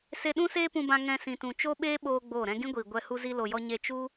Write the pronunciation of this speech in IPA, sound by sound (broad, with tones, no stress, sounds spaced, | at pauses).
s e˧ ɗ ũ˦ s eː˦ p ũ˧ b ã˧ ŋ ɛ̃˧ s ĩ˨ t ũ˨ t͡ʃ o˦ ɓ eː˦ ɓ oː˦ ɡ͡b oː˦˨ ɾ ɛ̃˦ ɡ ĩ˦ ɡʷ iː˨ ɡʷ ɛ˧ h u˧ z i˧ l o˨ j ɔ˧ ɲ e˧ t͡ʃ u˦